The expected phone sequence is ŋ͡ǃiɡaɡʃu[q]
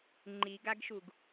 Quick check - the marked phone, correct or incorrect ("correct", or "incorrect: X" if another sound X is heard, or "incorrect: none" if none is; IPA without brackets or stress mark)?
incorrect: ɡ